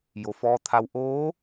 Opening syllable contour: low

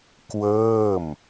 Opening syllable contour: falling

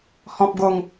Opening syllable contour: high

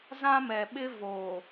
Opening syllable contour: high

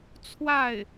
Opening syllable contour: falling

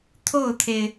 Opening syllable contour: falling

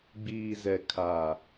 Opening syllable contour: low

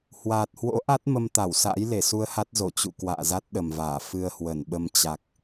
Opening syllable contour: low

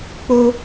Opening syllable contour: high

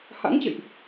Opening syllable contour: rising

